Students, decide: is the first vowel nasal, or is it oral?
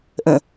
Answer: nasal